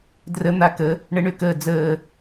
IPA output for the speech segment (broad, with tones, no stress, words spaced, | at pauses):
drə˨˩˦ n̪a˧˩kə˨˩˦ | ɳə˨˩˦ɳʏ˧˩kəː˧˩ d͡zəː˧˩